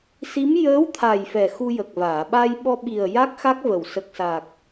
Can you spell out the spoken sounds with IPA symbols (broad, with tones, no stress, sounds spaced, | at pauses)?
s i˧˥ m j əː˧˥ w t̪ʰ a˨˩ j f ɛ˨˩ x u˧ j ə˨˩ k̚ v aː˨˩˨ ɓ a˧ j ɓ ɔ˧ ɓ i˨˩ ə̯ j a˦˥ k̚ x a˦˥ k̚ v ə˨˩ w s ə˨˩ k̚ s a˨˩ k̚